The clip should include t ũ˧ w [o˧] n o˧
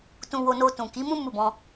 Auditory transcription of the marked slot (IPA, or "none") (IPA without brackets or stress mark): o˧